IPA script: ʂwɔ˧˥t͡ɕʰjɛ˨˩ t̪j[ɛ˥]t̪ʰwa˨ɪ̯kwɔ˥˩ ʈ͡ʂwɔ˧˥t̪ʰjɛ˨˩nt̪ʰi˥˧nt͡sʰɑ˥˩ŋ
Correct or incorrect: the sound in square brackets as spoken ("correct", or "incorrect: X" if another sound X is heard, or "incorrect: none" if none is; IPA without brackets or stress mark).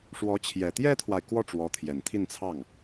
correct